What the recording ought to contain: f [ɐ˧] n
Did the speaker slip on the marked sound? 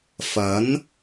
yes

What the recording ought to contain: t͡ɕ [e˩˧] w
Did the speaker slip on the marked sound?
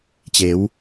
no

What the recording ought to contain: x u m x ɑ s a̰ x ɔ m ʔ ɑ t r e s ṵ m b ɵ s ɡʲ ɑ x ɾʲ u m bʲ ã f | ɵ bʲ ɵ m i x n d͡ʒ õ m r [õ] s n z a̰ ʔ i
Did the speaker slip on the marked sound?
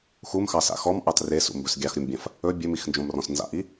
yes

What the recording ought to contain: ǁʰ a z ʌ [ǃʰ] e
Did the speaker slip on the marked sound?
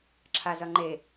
yes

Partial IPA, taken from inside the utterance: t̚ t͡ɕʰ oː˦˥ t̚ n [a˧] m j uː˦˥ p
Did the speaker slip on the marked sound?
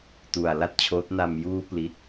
no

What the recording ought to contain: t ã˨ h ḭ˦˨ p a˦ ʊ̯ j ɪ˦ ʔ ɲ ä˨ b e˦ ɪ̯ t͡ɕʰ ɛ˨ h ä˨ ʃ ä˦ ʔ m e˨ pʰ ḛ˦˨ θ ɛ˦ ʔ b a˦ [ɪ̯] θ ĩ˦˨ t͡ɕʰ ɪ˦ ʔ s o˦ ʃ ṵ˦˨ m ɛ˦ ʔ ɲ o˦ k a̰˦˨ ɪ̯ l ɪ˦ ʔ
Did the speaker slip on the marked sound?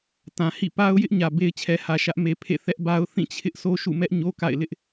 yes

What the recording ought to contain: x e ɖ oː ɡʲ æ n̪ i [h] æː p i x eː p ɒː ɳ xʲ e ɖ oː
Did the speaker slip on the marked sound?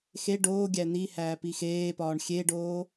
no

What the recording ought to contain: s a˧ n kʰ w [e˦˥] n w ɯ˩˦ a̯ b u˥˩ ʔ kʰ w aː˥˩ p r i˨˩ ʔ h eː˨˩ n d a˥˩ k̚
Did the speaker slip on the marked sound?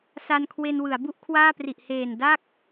yes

